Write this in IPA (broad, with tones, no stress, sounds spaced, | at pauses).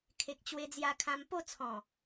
kʰ e˨ k̚ t͡ɕ w e˧ d͡z j a˧ kʰ ã˧ m p o˥˧ t͡sʰ ɔ̃˨˩